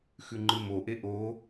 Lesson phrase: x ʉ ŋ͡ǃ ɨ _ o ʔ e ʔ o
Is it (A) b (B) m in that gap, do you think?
B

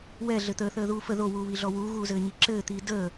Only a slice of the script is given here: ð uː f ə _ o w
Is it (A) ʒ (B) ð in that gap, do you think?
B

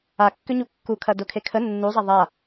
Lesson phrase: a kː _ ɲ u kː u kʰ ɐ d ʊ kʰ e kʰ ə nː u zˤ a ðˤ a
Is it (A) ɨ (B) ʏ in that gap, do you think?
B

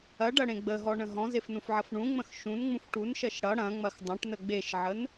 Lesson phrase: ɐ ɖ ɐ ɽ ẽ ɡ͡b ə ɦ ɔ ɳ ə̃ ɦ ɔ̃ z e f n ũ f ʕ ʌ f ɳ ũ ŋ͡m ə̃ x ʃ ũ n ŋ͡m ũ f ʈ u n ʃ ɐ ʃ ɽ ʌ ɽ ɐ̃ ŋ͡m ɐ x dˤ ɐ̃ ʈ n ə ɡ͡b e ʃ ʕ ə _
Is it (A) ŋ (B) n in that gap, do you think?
B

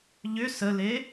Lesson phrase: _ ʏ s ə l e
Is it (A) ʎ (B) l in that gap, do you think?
A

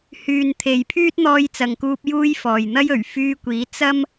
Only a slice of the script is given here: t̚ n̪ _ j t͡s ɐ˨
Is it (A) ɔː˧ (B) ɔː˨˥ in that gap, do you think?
A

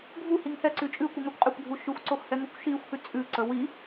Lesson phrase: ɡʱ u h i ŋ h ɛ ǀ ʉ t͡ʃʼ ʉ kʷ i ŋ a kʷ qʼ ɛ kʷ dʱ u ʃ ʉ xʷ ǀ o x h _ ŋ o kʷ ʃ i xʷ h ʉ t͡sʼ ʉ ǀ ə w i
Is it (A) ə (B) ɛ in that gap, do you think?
B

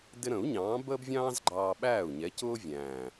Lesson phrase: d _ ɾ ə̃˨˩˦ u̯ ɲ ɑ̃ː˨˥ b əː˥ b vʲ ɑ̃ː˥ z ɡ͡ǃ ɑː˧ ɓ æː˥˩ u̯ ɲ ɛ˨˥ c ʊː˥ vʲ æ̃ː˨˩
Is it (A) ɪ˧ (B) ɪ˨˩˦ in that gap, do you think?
A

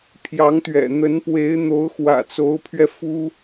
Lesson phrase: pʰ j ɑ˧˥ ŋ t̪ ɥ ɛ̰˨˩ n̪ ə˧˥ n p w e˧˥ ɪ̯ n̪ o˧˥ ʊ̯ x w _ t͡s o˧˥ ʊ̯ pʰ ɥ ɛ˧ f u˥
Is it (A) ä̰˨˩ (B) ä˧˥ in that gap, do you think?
A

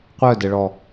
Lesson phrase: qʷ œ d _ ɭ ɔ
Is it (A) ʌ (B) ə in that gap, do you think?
B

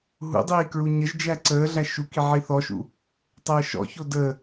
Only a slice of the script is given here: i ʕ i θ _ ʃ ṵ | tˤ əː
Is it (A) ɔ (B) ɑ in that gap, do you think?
A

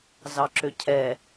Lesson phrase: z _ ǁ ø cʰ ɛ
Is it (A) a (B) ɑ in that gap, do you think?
B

